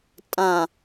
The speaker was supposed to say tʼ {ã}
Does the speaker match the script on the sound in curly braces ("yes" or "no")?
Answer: yes